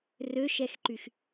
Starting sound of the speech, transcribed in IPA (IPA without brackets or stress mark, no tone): r